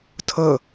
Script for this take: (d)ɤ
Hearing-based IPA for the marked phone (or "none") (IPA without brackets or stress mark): tʰ